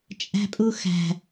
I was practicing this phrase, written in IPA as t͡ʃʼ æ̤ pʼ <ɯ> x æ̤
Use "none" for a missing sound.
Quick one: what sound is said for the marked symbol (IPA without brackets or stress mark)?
u